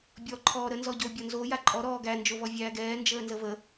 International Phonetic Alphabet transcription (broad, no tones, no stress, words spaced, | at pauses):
bʲɔ ǃʰɔːɾə nzɔɟo bʲɔnzo jaǃʼɔ ɾɔːɡæ nd͡ʒovɔvʲæːɡɛː nd͡ʒəːnzəvə